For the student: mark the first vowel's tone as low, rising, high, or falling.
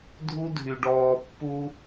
high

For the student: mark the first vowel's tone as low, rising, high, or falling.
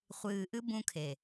low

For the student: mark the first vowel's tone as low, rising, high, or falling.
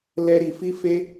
high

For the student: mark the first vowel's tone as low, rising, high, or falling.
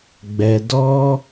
low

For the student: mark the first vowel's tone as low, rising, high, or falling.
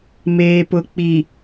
low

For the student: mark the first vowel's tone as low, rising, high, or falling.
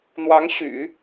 rising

